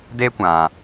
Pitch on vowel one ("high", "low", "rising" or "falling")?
high